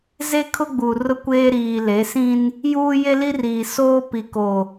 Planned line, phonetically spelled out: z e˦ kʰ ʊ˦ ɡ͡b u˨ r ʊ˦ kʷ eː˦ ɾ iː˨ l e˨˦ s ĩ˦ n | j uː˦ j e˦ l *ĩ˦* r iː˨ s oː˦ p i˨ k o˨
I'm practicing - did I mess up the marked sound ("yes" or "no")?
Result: yes